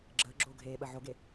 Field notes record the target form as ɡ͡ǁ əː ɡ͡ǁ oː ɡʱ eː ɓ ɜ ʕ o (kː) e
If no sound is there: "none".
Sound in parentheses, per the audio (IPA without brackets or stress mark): ɡ